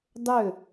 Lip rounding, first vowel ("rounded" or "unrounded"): rounded